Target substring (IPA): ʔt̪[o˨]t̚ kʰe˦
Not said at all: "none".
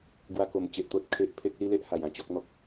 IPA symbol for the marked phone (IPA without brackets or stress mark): o˦